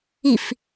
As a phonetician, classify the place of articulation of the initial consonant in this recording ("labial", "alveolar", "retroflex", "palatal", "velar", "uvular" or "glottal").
labial